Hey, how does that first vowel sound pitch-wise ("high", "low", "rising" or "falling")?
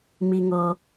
low